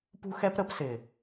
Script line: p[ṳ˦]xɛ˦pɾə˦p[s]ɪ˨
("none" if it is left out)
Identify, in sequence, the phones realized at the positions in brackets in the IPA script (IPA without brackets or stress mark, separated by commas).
ṳ˦, s